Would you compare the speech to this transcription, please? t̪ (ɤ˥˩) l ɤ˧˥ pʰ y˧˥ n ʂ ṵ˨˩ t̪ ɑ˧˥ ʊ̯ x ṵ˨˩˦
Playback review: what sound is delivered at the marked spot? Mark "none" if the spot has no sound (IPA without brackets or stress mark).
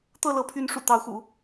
ɤ˥˩